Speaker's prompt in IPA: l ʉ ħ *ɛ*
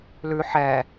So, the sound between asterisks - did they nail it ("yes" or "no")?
yes